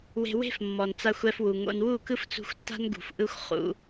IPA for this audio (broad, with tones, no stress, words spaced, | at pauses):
we̤˧we̤˦f mːɔ˨nt͡sa˧xʷ ɛ˧fwu˨ŋo̰˧n wu˦˨kɯ˦f t͡sṳ˧xʷtːa̤˦nɡṳ˨f ʔɯ˦xʷχṵ˧